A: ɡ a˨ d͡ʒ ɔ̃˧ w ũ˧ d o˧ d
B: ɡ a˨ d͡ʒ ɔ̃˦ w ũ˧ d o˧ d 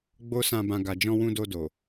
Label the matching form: A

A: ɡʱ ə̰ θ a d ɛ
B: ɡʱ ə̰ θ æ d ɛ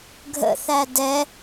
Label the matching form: B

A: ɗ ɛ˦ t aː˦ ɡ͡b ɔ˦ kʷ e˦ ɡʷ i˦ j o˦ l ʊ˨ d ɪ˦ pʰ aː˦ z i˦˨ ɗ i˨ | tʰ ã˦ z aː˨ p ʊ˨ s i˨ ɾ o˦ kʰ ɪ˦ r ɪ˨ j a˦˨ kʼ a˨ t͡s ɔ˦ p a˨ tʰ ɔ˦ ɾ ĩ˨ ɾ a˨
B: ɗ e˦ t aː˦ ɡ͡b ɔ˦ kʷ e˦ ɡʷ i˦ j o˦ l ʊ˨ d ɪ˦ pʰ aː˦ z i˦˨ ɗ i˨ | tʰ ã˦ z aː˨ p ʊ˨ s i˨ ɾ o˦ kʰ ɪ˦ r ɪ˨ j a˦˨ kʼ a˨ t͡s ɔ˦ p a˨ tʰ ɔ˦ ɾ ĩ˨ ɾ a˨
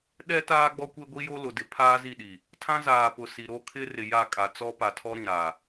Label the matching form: A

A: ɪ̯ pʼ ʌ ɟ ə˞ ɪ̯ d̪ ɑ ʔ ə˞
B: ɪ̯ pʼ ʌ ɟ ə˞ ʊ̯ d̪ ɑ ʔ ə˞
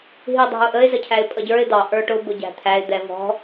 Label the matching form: A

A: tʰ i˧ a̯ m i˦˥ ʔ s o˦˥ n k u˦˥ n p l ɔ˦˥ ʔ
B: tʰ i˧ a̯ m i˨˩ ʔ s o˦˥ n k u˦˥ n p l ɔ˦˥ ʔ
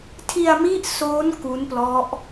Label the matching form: A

